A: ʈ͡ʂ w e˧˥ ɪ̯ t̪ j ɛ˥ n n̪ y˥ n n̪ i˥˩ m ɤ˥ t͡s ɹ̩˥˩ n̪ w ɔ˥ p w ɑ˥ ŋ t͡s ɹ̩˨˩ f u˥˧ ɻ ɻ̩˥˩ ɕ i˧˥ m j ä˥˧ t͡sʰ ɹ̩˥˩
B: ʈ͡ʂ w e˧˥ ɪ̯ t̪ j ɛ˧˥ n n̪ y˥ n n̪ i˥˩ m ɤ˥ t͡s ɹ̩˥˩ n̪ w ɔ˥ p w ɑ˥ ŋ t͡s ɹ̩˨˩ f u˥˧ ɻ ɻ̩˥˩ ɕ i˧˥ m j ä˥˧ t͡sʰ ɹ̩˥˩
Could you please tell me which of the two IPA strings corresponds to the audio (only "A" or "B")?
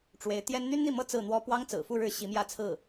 A